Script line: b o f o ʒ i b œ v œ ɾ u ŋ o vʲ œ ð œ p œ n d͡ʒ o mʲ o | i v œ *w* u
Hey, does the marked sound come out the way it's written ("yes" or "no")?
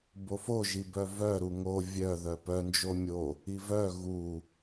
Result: no